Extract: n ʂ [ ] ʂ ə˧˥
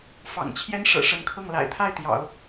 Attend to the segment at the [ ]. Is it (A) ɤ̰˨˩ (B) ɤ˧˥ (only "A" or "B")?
A